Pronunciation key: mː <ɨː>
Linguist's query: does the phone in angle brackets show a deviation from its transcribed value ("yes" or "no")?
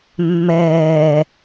yes